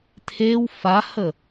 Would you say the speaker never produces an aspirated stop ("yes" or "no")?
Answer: no